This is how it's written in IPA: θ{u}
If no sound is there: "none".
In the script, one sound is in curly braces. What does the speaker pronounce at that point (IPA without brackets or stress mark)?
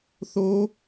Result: o